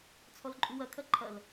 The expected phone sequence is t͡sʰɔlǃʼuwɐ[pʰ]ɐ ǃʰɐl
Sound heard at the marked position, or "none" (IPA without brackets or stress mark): kʰ